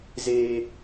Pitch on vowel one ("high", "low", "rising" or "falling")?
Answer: high